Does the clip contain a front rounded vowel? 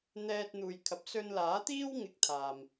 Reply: no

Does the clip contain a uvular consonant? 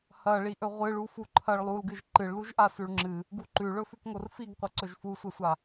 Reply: yes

